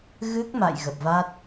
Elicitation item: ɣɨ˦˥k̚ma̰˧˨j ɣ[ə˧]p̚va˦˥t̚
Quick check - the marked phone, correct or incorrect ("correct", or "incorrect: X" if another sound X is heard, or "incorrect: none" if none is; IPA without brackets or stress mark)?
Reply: incorrect: ə˨˩